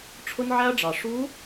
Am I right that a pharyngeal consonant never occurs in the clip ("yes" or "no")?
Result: no